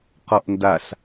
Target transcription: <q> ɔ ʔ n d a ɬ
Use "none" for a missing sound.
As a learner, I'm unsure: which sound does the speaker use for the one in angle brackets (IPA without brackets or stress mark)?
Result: q